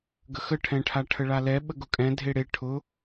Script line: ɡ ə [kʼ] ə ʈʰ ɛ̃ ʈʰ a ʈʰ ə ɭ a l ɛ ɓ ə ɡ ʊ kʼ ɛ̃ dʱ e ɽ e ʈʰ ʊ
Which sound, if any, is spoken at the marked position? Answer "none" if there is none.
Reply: x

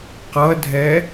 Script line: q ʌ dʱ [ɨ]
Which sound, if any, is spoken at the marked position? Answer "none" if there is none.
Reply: ɛ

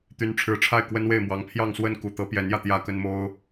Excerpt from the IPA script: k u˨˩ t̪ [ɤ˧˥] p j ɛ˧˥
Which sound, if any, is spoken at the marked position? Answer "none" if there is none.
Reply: ɤ˧˥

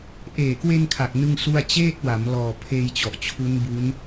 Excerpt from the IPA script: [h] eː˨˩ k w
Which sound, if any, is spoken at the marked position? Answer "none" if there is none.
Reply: ʔ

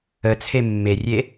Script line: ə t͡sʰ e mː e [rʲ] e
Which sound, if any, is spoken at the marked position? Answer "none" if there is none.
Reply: rʲ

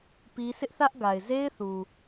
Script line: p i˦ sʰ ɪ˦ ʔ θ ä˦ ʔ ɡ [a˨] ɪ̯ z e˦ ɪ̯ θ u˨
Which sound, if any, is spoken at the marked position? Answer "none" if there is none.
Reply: a˨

